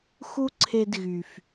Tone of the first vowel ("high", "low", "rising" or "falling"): high